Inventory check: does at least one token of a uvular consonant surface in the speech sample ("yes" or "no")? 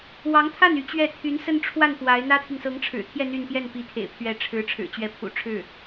no